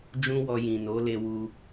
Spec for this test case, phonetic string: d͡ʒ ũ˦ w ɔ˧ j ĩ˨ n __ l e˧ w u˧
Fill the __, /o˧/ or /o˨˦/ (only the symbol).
o˨˦